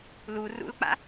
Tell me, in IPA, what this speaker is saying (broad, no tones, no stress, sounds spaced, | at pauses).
l u r ṵ l k͡p a̰